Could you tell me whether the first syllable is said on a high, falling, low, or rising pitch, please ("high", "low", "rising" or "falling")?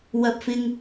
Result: high